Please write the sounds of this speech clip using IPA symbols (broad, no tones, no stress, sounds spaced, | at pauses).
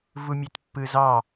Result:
v u mʲ e t pː ɯ z ɑ